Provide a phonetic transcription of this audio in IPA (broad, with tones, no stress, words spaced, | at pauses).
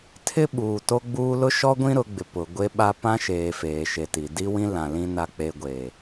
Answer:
tʰɪ˦ɓuː˨ to˦ɡ͡buː˦ lʊ˦ʃɔ˦ɡʷĩ˦ ɾʊ˨˦ɡ͡bɪ˨ pʊ˨ ɡʷe˦ɓa˦ pã˦ʃeː˨ feː˨ʃe˨ti˨ di˦ wĩ˦ lã˨lĩ˦ na˦k͡pe˦ ɡʷe˨